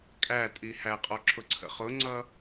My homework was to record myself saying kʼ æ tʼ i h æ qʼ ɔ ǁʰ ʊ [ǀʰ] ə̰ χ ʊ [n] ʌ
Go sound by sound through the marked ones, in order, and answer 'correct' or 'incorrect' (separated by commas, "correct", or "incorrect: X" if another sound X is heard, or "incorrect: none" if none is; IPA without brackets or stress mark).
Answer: correct, incorrect: ŋ͡ǀ